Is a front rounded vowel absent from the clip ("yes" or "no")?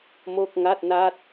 yes